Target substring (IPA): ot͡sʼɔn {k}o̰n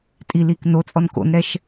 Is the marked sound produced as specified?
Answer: yes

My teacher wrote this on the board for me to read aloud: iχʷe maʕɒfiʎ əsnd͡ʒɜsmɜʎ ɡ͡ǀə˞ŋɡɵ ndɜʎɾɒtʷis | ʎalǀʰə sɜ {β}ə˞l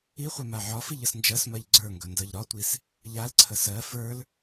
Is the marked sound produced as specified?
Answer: no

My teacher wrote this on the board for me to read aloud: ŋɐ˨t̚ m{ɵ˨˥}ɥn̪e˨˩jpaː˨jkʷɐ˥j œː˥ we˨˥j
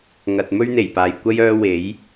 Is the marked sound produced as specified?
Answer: no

